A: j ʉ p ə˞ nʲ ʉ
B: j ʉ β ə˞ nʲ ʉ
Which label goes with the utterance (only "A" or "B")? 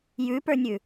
A